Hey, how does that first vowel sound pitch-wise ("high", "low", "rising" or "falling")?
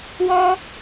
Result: high